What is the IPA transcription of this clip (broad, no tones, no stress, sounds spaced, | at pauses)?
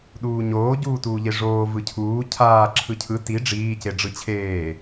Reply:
ɗ uː ɲ oː ɟ uː t uː ʎ e ʐ oː v ɯ cʰ uː cʰ aː ǁʰ ɯ cʰ ɯ t i ɖ͡ʐ iː c e ɖ͡ʐ ɯ t͡ɕʰ eː